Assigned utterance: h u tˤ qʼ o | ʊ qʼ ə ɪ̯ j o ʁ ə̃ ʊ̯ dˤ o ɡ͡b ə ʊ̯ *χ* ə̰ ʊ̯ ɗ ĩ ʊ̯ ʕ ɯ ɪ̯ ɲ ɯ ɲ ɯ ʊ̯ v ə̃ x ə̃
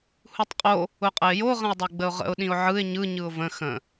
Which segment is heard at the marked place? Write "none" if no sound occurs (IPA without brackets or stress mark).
ʁ